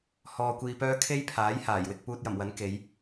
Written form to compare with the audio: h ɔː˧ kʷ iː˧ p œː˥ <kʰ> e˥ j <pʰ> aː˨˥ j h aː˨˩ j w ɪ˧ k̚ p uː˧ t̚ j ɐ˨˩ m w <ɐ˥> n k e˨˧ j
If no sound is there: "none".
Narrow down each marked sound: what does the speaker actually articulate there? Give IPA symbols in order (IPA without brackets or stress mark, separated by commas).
kʰ, pʰ, ɐ˨˥